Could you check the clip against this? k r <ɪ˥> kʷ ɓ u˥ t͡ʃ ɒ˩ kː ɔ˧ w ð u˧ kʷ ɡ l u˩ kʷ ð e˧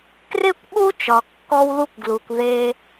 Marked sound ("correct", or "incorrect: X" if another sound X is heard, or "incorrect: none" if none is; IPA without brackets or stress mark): correct